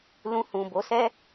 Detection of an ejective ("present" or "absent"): absent